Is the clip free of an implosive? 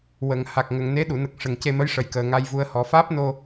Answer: no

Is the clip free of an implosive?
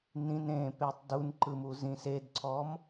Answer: yes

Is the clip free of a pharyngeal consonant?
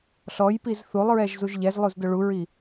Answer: yes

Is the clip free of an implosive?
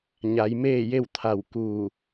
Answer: yes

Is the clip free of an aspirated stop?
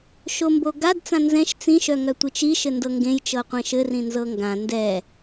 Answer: yes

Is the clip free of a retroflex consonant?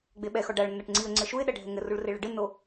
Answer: no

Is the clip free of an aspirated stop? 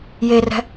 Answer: yes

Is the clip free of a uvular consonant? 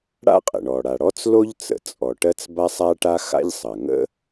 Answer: no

